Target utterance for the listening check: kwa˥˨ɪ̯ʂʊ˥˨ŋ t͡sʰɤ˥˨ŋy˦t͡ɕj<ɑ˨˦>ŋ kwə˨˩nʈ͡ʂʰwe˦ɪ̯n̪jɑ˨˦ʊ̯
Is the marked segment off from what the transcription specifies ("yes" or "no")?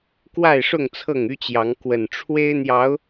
no